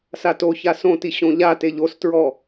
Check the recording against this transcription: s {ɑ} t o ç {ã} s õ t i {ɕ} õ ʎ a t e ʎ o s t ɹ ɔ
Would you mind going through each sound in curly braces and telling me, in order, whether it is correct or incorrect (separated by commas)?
incorrect, incorrect, correct